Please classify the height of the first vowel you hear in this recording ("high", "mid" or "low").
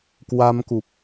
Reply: low